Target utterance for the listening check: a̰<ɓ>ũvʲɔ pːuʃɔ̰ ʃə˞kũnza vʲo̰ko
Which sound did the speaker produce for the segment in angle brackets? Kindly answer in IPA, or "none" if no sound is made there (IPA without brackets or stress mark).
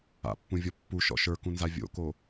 pː